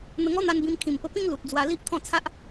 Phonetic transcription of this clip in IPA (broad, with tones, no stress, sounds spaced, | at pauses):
n̪ ə˧ ŋ ɔ˦ n̪ a˧ n b ĩ˧ m kʰ ĩ˨˩ m p ə˧ p ĩ˦ ŋ l u˨ t̚ d͡z w a˧ l i˦ ʔ t̪ʰ ɔ̃˥˧ t͡sʰ a˦ ʔ